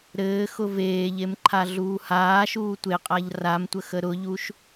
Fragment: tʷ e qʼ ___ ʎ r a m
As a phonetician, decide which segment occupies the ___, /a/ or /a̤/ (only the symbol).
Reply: a